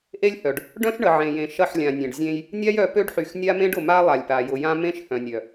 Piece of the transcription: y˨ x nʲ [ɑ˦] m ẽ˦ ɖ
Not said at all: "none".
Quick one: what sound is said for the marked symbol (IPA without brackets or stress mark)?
a˦